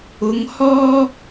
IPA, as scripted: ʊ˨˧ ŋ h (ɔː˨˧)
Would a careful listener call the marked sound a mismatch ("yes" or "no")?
yes